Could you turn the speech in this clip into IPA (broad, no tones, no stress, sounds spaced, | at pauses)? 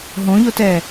ɦ õ ʎ o t ɛ